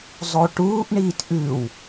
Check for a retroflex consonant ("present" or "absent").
present